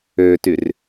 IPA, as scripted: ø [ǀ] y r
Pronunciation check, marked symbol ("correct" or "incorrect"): incorrect